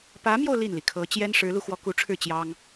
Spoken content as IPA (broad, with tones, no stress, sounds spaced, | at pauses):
p ä˧˥ m j o˧ ʊ̯ l i˥˩ n l i˩ kʰ ɤ˧˥ t͡ɕ j ɛ˥ n ʂ ɻ̩˧˥ l u˧ x w ɔ˧˥ k u˧˥ ʈ͡ʂʰ ɻ̩˥˩ t͡ɕ j ɑ˥ ŋ